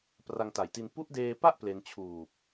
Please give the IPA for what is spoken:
pra˧ŋta˨˩jti˧n pu˦˥ʔdeː˧pa˥˩ʔ ple˧nt͡ɕʰuː˨˩p̚

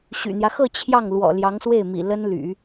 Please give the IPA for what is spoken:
ɕy̰˨˩n̪jä˦ xɤ˥˧ t͡ɕʰjɑ˥˩ŋlwɔ̰˨˩ ljɑ˧˥ŋswe˥˩ɪ̯mḭ˨˩ lə˥nly̰˨˩˦

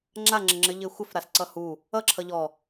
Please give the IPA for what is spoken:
ŋ͡ǁaŋ͡ǁəŋ͡ǁɘ ʎɘxʷɘf ɾasǀʌhu | ʌǁʰʌ ʎɔ

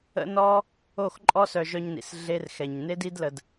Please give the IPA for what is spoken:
ə̰˦nɔ˦ | o˦˨xǃʼɔ˦sœ˧ ʒœ˧ɲnḭ˨s ɮe˦rxɛ˧ɲ ne˦di˦dlə˧d

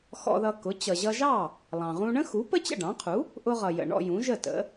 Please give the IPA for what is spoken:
xɔ̰˧ðʌ˧kʊ˩˥ t͡ɕʌ˩ʑʌ˧ʒɑ˥˩ | lˠɑ̃˩ʁũ˧ɳə̃˥xu˩˥ pə˥t͡ɕə̰˥˩ɖɑ̃˩˥qʰu˩˥ | ʔʊ˧ʁʌ˩ jə̰˩ ɳɔ̰˧jũ˩˥ʒə˥˩tə̰˩˥

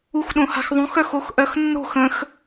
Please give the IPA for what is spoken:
uxɗõha̤xðˤõx œxoxʔœxnːo̤x ə̃x

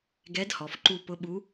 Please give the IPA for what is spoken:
ɡɛ˧˥dhɔ˩˧fǃu˧ pʊ˧˥ɓu˧˥

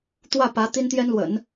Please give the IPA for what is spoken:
t̪wä˥˩ pä˧˥ t̪i˥nt̪jɛ˥nlwə̰˨˩˦n

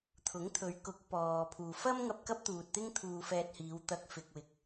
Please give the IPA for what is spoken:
t̪ʰʊ˨˥ŋt̪ʰɵ˨˧ɥ kʊ˨˥k̚ pɔː˨ pʰuː˨fɐ˥mŋɐ˧p̚ kɐ˥p̚t̪uː˨t̚t̪ɪ˥ŋ t̪ʰuː˧fɛː˧t̚hiː˨˧wt̪ɐ˧k̚ fɪ˧k̚ wɪ˨˥k̚

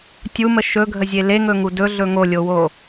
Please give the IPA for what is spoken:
tʲumə ʃɵɡʱəzʲe leŋɵŋu dɵɮɵ ŋolʲowo

